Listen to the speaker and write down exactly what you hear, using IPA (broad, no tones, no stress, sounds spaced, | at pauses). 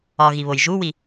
ɒ ɣ i β o j ʒ u w i